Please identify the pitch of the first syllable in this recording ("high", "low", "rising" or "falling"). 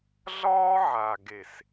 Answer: high